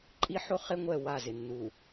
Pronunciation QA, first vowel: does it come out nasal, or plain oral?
oral